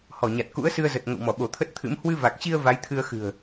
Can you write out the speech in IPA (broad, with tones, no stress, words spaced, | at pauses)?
hɔ˧˩ ɲa˨˩t̚ kṵ˧˥ə̯sɨ˧ə̯zə˨˩t̚ ŋə̰˧˨wmɔ˧˩ ɓo˧˩t̪ʰə˦˥t̚t̪ʰɨ̰˧˥m hwɨ˧va˨˩k̚t͡ɕi˧ə̯ va˨˦jt̪ʰɨ˧ə̯ xɨ̤˨˩ə̯